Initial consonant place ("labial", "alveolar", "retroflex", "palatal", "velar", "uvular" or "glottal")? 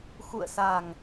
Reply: velar